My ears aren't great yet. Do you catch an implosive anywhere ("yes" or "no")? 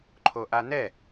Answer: no